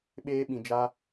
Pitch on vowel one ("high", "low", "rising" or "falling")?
high